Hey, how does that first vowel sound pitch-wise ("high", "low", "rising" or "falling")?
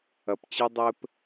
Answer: low